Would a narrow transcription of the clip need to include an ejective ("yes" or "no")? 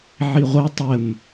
no